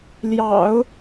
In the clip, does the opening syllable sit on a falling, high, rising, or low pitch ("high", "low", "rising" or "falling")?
low